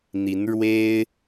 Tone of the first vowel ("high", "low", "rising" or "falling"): rising